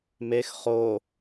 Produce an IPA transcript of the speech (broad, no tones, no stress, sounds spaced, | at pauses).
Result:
m e x χ o